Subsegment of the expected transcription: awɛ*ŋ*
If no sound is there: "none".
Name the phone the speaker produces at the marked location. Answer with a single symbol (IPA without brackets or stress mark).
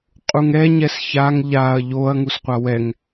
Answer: ŋ